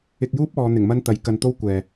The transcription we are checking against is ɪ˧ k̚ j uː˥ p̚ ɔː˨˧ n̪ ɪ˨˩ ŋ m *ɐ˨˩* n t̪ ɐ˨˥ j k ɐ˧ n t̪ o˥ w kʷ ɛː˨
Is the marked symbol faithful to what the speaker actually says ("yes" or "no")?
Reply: no